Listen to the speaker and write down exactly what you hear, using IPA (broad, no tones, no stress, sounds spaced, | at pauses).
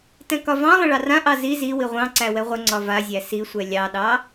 t ɛ̃ k ɒ v ɑ̃ lˠ ə̃ ɭ ɑ r ã ʔ ɑ z i z i w i ʁʷ ɑ̃ ǀ æ w ɛ ʁʷ ə ŋ͡ǀ ɒ v a zʲ æ s i sʷ ɛ lʲ ɑ ɗ ɑ